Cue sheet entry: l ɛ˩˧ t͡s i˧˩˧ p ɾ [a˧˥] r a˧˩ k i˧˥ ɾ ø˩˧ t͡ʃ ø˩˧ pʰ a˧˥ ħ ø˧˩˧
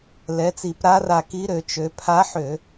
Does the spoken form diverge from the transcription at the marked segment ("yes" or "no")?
no